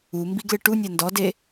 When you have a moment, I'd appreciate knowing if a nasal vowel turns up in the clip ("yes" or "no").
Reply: no